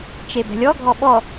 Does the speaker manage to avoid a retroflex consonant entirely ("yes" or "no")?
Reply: yes